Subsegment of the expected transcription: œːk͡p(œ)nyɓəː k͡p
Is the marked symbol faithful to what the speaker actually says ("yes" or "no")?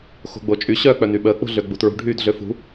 yes